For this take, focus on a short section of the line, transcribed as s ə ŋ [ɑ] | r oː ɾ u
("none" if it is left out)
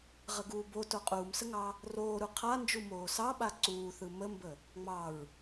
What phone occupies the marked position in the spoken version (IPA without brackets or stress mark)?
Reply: ɑ